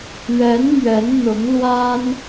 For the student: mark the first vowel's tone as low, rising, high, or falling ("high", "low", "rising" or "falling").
rising